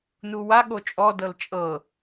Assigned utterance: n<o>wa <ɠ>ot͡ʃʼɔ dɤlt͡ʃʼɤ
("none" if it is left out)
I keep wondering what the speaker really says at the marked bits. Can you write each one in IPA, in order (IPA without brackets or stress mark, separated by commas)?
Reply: u, ɠ